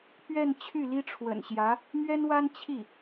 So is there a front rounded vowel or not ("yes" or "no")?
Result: yes